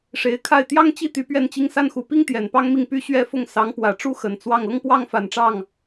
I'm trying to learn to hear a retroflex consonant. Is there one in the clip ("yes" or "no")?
yes